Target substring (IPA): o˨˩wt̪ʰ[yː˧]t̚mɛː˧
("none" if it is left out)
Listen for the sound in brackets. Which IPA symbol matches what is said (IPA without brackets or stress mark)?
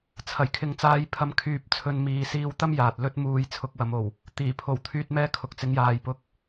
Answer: yː˧